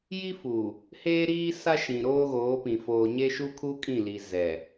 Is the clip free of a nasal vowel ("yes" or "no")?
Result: no